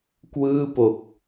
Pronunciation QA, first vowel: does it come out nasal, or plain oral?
oral